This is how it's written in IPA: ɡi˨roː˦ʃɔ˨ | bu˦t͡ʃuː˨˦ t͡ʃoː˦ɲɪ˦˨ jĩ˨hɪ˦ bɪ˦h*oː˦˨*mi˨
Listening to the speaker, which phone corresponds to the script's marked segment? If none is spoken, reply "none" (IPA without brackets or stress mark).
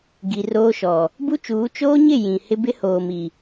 oː˨